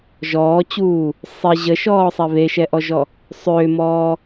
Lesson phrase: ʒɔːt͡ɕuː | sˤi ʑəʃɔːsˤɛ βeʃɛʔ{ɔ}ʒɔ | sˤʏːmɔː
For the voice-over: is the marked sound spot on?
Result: yes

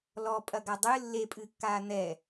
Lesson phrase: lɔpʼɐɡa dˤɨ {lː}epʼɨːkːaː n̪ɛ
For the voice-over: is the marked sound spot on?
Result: yes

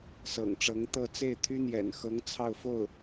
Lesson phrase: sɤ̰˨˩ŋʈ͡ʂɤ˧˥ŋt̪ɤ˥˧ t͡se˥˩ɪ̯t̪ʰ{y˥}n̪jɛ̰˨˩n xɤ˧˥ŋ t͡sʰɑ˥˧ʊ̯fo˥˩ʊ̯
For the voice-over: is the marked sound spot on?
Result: yes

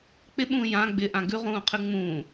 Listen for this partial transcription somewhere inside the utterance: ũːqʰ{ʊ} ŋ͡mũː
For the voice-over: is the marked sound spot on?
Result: no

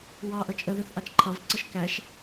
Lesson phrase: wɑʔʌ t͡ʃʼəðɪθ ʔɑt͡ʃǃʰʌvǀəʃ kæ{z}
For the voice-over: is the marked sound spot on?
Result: no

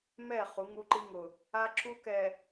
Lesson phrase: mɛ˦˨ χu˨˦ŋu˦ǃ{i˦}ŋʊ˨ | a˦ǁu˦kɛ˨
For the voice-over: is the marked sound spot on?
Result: yes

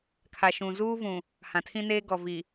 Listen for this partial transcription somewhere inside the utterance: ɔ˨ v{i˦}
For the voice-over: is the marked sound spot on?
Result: no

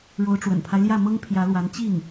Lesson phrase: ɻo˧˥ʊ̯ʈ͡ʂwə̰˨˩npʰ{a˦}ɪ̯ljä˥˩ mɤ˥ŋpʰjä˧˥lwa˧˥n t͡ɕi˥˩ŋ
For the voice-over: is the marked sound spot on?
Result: yes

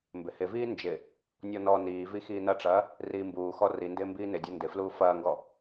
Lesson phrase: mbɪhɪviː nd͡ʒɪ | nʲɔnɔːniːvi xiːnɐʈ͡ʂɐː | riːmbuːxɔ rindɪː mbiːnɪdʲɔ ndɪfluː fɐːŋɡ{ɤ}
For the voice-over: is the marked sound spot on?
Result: no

